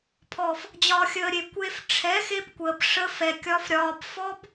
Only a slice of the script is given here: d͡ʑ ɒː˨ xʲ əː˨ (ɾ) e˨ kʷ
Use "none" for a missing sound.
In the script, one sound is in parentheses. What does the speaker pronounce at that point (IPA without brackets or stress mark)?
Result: ɾʲ